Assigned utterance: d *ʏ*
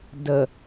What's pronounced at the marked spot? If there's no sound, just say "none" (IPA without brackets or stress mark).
ə